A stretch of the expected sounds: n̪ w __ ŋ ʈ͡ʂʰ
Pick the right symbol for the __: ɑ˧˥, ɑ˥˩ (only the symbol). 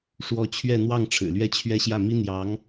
ɑ˥˩